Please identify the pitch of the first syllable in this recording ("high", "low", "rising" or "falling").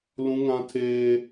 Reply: high